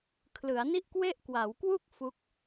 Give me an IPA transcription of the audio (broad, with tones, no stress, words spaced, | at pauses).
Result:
kʰlɯ˩˦a̯ni˥˩ʔkwe˥˩ʔkwaː˩˦w kwu˥˩k̚ fu˦˥k̚